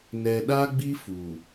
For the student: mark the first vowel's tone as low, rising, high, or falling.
low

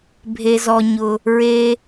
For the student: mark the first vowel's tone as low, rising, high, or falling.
high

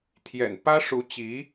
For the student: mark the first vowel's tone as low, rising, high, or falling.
low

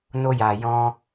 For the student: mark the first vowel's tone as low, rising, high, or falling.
high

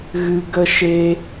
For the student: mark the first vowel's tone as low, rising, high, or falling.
low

